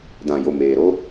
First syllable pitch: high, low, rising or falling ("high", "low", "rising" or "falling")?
low